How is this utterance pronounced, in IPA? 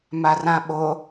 marãɓo

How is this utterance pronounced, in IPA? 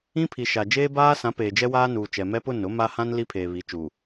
ĩ˦pʰi˨ ʃa˨ d͡ʒeː˦baː˦sã˨˦ peː˨d͡ʒɛ˦waː˦nuː˨ t͡ʃɛ˨mɛ˦ pʊ˦˨nʊ˨˦ma˦ hã˦n li˦pʰeː˨ βi˨˦t͡ʃuː˨

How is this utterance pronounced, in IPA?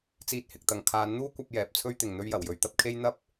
t͡siː˧t̚hɪ˨k̚t̪ɐ˨ŋ kʰaː˨˥nn̪uː˥kʷɐ˧p̚ jɛː˨p̚t͡sʰɵ˥ɥt̪ɪ˨ŋ n̪ɵ˧ɥjɐ˨˩wjɵ˨ɥt̪ɐ˨˥p̚ kʰe˥jn̪ɐ˥p̚

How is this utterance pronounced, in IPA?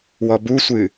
wɔbusʷɨ

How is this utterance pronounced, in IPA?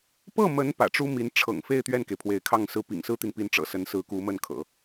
pɤ˥˩mə˧˥n pä̰˨˩ʈ͡ʂu˥ mi˧˥nʈ͡ʂʰɤ̰˨˩ŋfe˥˧ɪ̯ t̪ɥɛ˥˩nke˩ɪ̯pʰwe˧˥ɪ̯kʰɑ˥˩ŋ sɹ̩˥ pḭ˨˩ŋsɹ̩˥t̪i˨npi˧˥n ʈ͡ʂɤ̰˨˩sə˧˥nsɹ̩˧˥ ku˧˥mə˥˩nkʰɤ̰˨˩˦

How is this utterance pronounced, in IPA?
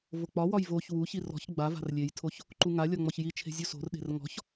vok͡pɒwɒj voç wuçi rɔ̤ç ɡ͡ba va̤rlʲejtʰoç | ǃuŋalʲɒ ŋ͡mɔçjit͡ʃʰe̤ zʲuso̤rɗe̤r ŋɔ̤ç

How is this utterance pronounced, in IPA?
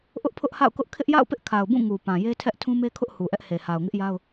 ʔʊ˦ʔpʰʊ˦ʔha̰˦˨ʊ̯kʊ˦ʔ kʰɪ˦ʔja̰˦˨ʊ̯pɪ˦ʔ kʰa˨ʊ̯bũ˦˨ ŋu˨ pã˨je˦tʰɛ˦ʔ tʰũ˦me˦kʰʊ˦ʔ hu˨ʔɛ˦ʔhe˨ ha˨ʊ̯ŋɪ˦ʔja˦ʊ̯

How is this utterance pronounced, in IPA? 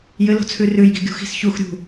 jɘlo̤t͡sʰʉ rʉjɡi ɡʲṳxi̤s çux ɾʲṳ

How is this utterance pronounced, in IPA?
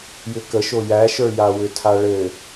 jʏkəʃo jæʃə˞ja wʏtʰaɭɘ

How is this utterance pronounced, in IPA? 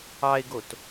ɑɪ̯ɡot

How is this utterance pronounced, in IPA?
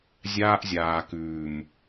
zʲaː˦ʔzʲaː˨kʉː˨m

